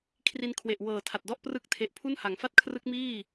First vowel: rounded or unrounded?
unrounded